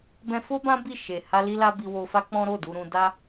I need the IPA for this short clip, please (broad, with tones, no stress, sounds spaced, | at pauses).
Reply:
b ɛ̃˧ f o˦ b ã˦ b i˦˨ ʃ e˨ h a˧ l i˧ l a˧ b i˧ w o˧ f a˦ k͡p ɔ̃˦ ɾ o˦˨ d u˧ ɾ ũ˧ d a˦